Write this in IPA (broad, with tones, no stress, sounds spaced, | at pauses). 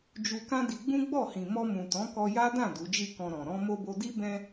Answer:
d͡ʒ u˧ k ã˦ d i˧ ɡ͡b ũ˦ ɡ͡b ɔ˦˨ h ĩ˨ m ɔ˧ m ũ˨ t ɔ̃˨˦ k ɔ˧ j a˦ d ã˦˨ d u˨˦ d͡ʒ i˦˨ k ɔ̃˧ ɾ ɔ̃˨ ɾ ɔ̃˧ m o˧ b o˧ d i˦ b ɛ̃˧